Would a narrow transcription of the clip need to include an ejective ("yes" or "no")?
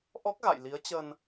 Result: no